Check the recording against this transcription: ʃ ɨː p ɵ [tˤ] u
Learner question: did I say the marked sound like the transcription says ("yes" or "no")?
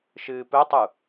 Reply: yes